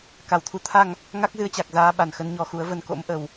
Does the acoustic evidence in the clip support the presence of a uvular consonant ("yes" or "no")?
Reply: no